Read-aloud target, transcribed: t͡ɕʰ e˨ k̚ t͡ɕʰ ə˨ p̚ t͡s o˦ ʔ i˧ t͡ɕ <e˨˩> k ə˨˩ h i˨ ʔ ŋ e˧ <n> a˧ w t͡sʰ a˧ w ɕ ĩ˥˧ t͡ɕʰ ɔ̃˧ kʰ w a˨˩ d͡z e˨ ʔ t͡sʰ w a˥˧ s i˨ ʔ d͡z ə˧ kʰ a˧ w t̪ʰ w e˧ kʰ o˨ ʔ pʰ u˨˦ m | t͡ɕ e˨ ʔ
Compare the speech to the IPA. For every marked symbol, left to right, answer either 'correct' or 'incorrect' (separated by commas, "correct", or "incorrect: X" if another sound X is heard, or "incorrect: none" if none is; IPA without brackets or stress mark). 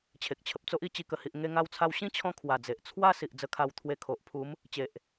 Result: incorrect: i˨˩, incorrect: ŋ